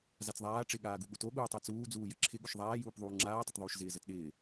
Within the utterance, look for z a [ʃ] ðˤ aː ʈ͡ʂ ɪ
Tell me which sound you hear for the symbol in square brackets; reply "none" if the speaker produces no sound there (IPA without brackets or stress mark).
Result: t͡s